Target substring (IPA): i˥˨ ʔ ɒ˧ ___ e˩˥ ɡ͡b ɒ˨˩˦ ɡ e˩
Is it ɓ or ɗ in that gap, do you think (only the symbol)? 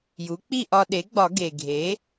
ɗ